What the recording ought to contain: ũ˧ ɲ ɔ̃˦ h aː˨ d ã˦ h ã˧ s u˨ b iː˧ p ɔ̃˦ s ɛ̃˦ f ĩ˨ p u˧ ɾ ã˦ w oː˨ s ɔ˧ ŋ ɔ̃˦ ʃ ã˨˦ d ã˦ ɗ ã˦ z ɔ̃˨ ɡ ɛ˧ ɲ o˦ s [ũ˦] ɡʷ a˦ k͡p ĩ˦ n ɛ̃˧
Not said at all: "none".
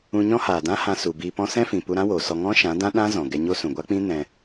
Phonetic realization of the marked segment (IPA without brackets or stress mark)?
ũ˨